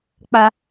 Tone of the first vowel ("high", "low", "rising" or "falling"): high